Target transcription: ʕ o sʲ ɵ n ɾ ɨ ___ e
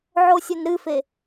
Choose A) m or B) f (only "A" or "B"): B